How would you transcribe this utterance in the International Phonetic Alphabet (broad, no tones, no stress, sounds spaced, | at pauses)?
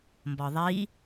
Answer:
m b ɒ ðˤ i